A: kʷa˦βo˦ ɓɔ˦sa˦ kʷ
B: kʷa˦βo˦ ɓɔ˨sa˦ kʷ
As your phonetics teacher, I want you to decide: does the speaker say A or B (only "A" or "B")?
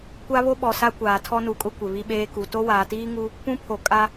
B